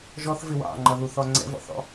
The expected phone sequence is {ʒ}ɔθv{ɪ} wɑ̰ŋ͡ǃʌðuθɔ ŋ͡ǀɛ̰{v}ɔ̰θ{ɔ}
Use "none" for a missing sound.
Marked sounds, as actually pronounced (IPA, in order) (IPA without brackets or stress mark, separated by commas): ʒ, ɪ, v, ɔ̰